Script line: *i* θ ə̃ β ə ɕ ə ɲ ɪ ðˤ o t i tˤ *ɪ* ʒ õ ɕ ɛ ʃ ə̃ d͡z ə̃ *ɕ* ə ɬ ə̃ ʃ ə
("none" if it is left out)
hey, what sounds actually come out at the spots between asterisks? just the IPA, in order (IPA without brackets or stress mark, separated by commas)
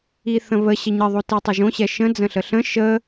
i, ɪ, ɬ